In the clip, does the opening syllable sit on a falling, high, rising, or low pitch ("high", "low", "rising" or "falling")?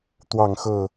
falling